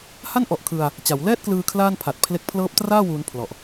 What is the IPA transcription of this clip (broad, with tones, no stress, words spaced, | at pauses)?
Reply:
ha˥˩nʔɔ˨˩ʔ kʰɯ˧a̯ | t͡ɕa˩˦w lɛː˥˩t̚klɯː˧ kʰlaː˥˩npʰa˨˩t̚pʰle˦˥k̚ pʰlɤː˦˥p̚traː˥˩ wuː˦˥npʰlɔ˨˩ʔ